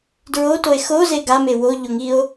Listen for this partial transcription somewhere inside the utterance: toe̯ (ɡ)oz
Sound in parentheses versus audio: incorrect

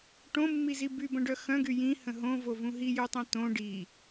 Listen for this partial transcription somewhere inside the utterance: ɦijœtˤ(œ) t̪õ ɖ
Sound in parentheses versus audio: incorrect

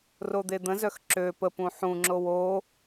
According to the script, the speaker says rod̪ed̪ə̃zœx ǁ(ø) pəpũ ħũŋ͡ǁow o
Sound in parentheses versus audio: correct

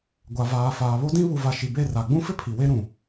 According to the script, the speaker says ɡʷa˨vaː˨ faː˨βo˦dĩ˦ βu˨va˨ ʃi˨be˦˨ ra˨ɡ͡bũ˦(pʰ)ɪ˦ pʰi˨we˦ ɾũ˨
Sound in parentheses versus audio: incorrect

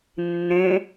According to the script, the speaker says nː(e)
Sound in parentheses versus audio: incorrect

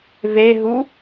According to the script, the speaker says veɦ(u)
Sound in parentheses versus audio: correct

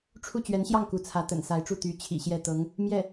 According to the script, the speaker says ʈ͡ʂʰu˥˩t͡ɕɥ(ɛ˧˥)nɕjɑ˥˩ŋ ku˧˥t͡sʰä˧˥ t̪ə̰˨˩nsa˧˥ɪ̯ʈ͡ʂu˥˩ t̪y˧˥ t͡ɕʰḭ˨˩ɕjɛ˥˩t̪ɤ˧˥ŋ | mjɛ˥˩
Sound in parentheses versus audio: correct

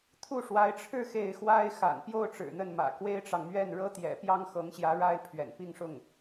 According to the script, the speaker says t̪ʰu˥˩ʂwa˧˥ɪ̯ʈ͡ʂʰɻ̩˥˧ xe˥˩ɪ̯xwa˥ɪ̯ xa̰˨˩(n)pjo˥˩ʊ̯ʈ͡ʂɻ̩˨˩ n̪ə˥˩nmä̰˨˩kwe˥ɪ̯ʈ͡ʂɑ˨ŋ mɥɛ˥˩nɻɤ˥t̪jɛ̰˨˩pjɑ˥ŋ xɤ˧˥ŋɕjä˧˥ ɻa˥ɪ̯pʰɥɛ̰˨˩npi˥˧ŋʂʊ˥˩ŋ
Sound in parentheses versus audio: correct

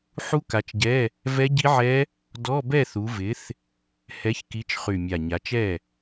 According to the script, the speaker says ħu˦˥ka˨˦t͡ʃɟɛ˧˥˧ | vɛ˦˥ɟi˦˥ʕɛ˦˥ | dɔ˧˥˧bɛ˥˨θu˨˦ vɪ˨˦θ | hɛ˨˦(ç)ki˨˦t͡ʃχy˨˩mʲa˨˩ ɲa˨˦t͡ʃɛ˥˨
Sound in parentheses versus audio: correct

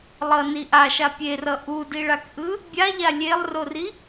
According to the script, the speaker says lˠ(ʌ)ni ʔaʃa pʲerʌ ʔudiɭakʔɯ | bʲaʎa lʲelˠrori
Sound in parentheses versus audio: correct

